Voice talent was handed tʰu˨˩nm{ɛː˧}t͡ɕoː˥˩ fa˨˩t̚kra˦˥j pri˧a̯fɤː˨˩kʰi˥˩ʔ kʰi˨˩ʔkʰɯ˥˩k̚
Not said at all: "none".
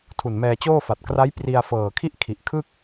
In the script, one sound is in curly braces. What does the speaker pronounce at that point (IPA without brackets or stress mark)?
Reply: ɛː˧